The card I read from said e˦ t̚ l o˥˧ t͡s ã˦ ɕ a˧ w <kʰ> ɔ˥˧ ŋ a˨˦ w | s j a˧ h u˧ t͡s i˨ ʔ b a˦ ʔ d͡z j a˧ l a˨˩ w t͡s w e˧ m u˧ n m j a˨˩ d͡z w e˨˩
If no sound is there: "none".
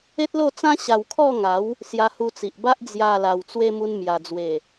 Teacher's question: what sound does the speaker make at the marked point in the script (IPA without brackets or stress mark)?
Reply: kʰ